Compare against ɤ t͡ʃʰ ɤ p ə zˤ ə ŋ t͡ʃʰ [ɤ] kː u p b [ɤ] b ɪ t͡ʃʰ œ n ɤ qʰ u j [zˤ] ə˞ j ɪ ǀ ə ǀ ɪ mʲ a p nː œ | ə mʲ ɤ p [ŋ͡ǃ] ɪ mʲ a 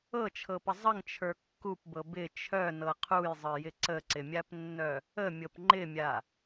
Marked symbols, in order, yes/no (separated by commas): no, yes, yes, yes